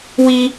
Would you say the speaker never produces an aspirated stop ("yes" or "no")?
yes